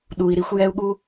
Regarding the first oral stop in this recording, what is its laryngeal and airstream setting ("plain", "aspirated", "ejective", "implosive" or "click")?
implosive